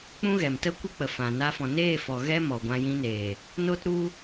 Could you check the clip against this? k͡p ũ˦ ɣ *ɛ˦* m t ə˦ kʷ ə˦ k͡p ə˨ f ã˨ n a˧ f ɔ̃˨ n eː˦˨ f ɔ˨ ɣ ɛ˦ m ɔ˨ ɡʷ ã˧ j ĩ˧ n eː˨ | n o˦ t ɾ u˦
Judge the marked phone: incorrect: ɛ˨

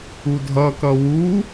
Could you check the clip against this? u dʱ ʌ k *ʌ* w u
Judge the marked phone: correct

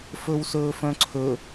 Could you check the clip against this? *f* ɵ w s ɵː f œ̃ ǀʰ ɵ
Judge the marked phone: correct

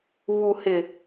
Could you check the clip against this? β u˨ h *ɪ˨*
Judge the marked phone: correct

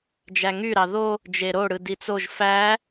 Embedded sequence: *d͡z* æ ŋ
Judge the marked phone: incorrect: d͡ʒ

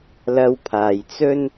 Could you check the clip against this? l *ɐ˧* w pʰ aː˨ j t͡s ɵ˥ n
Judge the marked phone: correct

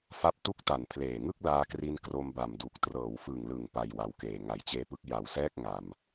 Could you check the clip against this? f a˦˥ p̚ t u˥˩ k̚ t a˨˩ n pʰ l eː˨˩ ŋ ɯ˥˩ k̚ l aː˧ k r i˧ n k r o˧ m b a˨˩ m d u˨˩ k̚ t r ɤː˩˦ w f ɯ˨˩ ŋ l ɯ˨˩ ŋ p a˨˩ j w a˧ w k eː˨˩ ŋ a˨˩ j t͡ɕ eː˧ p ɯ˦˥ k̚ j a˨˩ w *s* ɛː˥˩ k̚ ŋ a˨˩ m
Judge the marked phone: correct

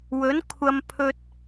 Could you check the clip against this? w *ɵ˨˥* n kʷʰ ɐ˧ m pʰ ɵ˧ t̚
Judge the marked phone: correct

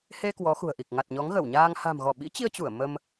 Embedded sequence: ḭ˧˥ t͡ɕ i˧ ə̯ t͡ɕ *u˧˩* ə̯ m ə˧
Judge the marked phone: correct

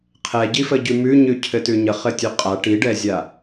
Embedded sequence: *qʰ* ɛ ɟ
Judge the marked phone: correct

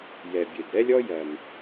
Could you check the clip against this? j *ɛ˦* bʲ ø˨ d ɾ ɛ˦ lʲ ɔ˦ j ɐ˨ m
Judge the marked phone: incorrect: ɛ˨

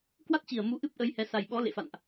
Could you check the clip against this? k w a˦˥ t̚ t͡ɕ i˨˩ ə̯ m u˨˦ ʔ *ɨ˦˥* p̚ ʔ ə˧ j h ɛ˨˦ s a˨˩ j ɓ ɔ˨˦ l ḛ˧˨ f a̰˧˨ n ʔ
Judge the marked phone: correct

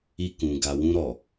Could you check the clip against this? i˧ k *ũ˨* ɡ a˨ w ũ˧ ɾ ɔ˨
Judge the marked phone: correct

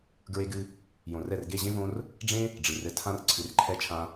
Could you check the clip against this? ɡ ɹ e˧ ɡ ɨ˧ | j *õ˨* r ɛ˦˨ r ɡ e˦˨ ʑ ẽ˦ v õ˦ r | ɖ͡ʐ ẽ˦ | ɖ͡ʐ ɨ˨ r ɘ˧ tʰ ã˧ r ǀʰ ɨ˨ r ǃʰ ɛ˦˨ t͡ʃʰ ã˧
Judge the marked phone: correct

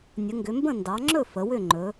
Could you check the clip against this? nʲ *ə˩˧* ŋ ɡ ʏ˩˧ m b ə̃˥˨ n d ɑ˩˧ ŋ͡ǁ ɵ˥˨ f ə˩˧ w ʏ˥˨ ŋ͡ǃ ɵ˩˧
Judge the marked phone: correct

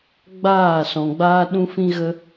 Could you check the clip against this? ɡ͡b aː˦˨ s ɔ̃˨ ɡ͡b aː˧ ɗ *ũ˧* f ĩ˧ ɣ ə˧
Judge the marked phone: correct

